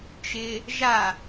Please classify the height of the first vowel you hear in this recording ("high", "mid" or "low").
high